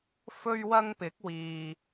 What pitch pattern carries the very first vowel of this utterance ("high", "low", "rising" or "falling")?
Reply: high